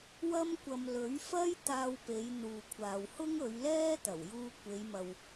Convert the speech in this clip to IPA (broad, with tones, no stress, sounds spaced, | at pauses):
w ɐ˥ m kʷ ɐ˧ m l ɵ˨˥ ɥ f ɐ˥ j t̪ aː˧ w p e˨˧ j n̪ uː˨ kʷʰ aː˨ w h ʊ˥ ŋ ɵ˨˧ ɥ l ɛː˥ t̪ ɐ˨˩ w j uː˧ kʷ e˨˧ j m ɐ˨ w